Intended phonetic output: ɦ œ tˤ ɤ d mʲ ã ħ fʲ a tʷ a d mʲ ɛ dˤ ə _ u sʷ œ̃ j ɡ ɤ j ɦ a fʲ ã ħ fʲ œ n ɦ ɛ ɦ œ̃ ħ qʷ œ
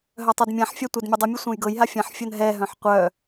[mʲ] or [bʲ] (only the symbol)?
mʲ